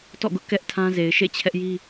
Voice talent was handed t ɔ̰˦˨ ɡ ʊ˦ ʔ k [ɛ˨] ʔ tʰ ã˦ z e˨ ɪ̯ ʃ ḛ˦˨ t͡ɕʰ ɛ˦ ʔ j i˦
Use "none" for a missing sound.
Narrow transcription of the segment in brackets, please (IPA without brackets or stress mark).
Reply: ɛ˦